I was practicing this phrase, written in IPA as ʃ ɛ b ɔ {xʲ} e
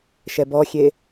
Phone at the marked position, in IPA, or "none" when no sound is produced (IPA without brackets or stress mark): xʲ